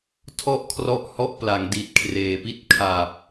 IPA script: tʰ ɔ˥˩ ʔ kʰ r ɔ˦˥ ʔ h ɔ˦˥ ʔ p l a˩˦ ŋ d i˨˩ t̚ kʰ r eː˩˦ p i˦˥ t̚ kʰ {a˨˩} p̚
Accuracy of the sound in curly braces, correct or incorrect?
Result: correct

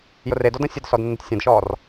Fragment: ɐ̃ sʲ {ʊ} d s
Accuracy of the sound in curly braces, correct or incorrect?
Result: correct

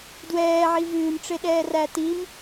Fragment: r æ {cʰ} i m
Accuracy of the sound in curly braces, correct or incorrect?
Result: incorrect: t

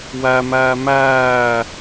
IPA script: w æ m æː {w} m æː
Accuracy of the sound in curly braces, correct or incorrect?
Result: incorrect: none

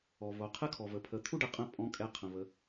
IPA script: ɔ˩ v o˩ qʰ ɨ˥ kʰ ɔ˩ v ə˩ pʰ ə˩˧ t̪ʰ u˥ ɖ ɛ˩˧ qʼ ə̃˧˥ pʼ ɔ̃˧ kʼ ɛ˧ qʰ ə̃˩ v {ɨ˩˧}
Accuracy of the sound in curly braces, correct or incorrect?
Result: incorrect: ə˩˧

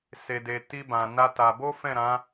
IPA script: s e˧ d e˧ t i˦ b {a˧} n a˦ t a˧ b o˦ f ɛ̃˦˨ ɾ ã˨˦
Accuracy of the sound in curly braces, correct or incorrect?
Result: incorrect: ã˧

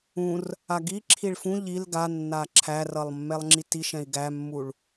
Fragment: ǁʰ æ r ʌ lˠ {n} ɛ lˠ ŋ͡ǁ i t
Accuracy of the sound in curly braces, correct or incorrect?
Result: incorrect: mː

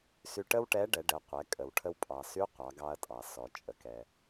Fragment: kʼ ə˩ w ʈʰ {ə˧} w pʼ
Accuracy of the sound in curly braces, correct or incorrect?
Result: correct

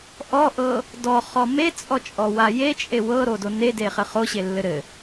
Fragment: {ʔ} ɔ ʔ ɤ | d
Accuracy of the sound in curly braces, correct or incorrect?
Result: correct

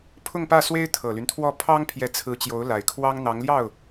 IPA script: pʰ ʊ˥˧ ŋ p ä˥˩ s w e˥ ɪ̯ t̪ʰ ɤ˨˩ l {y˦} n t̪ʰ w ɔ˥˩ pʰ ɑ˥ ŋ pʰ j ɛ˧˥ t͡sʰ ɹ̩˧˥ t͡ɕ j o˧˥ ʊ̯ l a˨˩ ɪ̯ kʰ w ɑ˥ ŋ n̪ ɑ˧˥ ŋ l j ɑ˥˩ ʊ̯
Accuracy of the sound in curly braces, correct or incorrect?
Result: correct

